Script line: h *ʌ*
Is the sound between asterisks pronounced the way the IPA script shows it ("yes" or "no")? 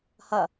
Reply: yes